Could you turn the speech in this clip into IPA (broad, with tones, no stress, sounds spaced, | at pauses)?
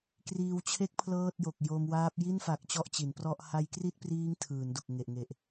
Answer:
k r iː˧ w t͡ɕʰ e˦˥ k̚ pʰ l ɤː˥˩ t̚ j o˨˩ k̚ j o˧ m w aː˦˥ p̚ j i˥˩ n f a˨˩ k̚ t͡ɕ ɔ˥˩ ʔ t͡ɕ i˩˦ n p r ɔ˥˩ ʔ h a˦˥ j k r i˥˩ t̚ p r iː˦˥ ŋ tʰ ɯː˩˦ n d u˨˩ k̚ ŋ e˨˩ ʔ ŋ e˨˩ ʔ